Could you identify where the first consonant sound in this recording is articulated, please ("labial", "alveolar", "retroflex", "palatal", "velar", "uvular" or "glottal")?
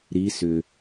alveolar